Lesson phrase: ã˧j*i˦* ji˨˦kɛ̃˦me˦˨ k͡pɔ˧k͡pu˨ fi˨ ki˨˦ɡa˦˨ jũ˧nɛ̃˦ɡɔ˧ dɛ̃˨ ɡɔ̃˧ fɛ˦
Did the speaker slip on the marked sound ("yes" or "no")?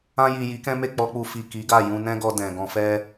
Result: yes